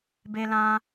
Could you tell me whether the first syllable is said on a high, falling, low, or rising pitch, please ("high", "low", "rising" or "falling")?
high